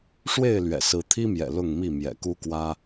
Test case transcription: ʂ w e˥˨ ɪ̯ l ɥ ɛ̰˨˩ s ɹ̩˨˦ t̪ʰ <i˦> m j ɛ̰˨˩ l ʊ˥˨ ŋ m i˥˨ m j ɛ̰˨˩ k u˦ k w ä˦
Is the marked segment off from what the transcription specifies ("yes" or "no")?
no